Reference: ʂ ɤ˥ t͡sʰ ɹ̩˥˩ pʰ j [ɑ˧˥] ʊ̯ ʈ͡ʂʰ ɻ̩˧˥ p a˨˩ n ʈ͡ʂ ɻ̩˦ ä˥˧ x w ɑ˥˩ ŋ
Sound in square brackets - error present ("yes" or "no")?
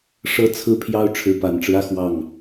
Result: yes